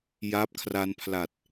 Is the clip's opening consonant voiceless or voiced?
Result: voiced